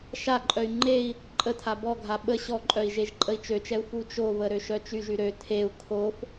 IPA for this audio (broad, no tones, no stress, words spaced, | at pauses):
ʃaǃʼœy̯ ŋ͡ǃei̯ | ǃʼətʰa bɔɡʱa ɓə ɕɔǃʼœi̯ ʒeʒǃʼəi̯t͡ʃøt͡ʃɛu̯ fut͡ʃovə ɾøʃœt͡ʃyʒy ɾø tʰeu̯ kʰof